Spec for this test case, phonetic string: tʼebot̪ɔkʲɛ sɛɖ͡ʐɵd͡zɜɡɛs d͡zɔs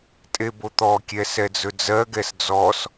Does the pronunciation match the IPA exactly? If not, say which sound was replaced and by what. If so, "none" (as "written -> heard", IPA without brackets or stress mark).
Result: ɖ͡ʐ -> d͡z